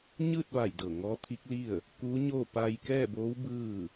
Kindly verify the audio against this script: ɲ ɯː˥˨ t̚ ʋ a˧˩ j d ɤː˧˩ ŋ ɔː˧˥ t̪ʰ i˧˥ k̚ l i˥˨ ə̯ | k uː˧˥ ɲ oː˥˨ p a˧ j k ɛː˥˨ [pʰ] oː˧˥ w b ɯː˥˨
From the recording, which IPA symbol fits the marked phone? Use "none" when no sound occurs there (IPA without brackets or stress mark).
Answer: b